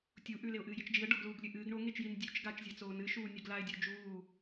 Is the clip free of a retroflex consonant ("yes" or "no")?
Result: no